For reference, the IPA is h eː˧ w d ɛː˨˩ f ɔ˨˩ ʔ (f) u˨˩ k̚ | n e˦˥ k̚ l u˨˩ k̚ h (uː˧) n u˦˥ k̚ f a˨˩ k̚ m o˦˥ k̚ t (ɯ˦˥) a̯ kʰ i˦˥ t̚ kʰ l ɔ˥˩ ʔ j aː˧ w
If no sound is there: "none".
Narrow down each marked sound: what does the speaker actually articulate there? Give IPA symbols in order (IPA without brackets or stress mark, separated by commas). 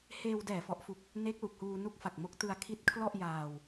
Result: f, uː˧, ɯ˧